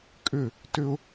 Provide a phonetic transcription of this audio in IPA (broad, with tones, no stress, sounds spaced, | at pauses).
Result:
kʼ ʏ˧˩ | t ʏ˧ ʊ̯